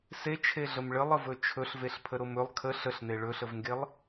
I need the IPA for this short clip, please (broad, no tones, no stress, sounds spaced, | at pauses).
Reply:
s e t͡ʃʰ e ɮ ə m ɭ ə lˠ ə v ɵ t͡ʃʰ ɵ ɬ v e ɬ pʰ ə ɾ o m ɵ lˠ kʰ ə ɬ ə ɬ n̪ e ɭ ɵ ɬ ə v ŋ ɡ e lˠ